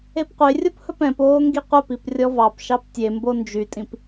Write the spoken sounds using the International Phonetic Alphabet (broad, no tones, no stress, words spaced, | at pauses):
epqʷerʲop hɵpɛ̃poː ŋɡiqʷœpip rʲɔvɑpʃɑp tʲembo nd͡ʒytʼĩp